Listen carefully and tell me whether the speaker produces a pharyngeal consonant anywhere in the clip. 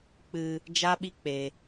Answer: no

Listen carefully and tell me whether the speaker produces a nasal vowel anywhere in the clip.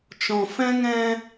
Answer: yes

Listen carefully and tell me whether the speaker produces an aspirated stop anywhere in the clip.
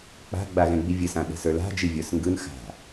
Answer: no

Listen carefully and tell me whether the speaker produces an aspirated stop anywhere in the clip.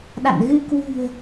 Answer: no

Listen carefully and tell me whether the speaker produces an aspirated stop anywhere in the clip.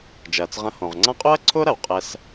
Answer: yes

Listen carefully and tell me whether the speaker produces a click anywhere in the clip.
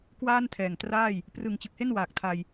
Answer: no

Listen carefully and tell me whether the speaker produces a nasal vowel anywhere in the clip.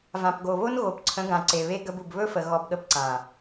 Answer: yes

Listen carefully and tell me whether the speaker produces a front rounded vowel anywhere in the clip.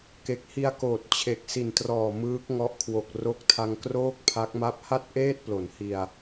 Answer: no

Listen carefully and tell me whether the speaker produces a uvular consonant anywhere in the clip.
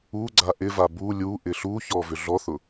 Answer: no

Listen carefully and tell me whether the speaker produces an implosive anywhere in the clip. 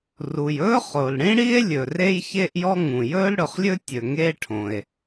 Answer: no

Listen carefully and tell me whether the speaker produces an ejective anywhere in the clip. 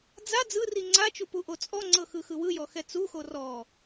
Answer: yes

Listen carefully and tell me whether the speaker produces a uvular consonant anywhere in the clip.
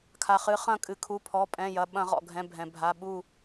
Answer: yes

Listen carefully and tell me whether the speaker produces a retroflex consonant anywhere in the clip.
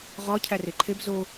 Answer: no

